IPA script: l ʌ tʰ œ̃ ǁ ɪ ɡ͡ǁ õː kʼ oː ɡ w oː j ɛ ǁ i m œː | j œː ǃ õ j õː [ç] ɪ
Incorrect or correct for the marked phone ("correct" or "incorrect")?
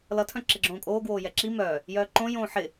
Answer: incorrect